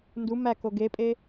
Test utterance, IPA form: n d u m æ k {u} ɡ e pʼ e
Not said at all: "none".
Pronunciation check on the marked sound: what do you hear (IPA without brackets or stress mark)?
o